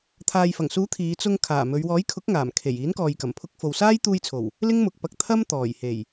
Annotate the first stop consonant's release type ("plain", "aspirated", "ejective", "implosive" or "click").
aspirated